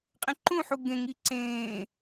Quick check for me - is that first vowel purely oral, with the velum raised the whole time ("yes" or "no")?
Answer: no